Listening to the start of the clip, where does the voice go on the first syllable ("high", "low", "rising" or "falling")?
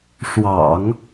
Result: low